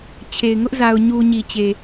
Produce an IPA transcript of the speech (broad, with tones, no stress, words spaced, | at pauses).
t͡ɕʰe˨ɪ̯ŋʊ˦ʔ za˨ʊ̯ɲu˨ɲi˨t͡ɕe˨